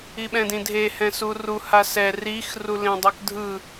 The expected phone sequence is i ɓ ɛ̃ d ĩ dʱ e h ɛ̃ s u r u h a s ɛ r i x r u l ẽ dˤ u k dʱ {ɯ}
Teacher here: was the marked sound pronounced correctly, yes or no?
yes